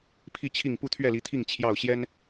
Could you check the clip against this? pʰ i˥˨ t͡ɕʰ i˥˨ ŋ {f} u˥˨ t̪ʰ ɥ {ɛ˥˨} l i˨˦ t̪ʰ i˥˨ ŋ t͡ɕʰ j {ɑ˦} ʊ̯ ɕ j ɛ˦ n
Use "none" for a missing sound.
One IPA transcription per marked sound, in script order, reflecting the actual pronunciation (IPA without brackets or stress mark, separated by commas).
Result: p, ɛ˥˨, ɑ˥˨